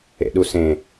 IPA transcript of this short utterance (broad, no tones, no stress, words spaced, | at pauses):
ḛɗusẽ